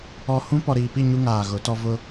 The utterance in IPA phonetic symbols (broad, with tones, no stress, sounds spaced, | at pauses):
ɔ˨ h ũ˦ p ɔ˨ ɾ iː˨ p i˦˨ ɲ u˦ ŋ aː˨ ɣ ʊ˨˦ t ɔ˦ v ʊ˦